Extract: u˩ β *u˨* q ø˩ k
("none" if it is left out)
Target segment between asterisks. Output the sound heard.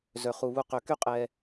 u˨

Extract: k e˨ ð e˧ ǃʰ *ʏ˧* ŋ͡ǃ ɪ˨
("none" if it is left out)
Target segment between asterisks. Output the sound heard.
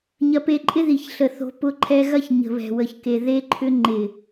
ʏ˧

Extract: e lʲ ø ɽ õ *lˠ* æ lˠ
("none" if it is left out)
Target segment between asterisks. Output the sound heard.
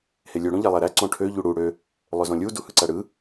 ʎ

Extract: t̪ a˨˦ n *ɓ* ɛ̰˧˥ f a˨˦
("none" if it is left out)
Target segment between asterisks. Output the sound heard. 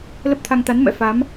m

